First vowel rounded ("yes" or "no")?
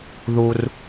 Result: yes